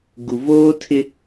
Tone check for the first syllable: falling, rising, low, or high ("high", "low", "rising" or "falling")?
low